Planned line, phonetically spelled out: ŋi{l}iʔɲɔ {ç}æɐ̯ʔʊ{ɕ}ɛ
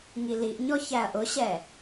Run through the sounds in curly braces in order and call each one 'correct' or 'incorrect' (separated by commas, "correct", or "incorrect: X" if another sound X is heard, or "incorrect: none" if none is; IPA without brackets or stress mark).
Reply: correct, correct, correct